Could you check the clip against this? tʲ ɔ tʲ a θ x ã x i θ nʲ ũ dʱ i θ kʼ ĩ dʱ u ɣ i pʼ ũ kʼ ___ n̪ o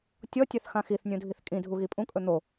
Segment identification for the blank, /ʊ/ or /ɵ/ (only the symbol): ɵ